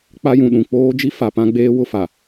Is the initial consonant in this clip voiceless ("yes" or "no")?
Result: yes